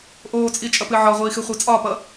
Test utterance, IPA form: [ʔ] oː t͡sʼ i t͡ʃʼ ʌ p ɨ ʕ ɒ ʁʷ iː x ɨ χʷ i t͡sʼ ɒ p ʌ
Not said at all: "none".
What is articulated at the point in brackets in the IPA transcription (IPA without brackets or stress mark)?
ʔ